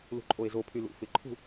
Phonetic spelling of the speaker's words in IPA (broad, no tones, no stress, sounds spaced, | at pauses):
l ṳ ǃʼ o e̯ z o pʰ y l ṵ f ɪ ǃʰ ṳ